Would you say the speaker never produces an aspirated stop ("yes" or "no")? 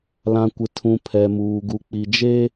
no